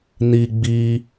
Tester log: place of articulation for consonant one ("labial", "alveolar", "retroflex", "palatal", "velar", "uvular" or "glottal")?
alveolar